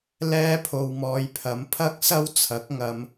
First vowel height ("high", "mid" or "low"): mid